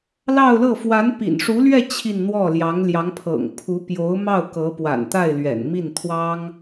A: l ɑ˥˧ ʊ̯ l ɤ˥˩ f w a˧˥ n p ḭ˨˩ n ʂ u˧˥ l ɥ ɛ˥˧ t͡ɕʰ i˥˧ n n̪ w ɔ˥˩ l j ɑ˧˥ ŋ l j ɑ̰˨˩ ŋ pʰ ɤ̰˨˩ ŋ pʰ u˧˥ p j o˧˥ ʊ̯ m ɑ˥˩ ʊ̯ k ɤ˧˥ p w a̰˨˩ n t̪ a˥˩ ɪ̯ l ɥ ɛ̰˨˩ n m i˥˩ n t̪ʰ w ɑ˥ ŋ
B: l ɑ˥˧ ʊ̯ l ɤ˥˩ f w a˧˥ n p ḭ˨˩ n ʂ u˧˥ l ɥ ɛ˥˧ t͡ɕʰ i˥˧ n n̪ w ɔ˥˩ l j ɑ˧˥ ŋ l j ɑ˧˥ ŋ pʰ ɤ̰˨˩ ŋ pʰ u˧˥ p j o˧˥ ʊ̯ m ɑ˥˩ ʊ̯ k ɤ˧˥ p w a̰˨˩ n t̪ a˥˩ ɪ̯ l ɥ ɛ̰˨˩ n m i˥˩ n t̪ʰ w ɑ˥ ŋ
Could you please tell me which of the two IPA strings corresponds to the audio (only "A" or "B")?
B